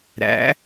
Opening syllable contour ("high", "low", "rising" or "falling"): rising